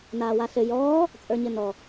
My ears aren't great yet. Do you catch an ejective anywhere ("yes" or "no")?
yes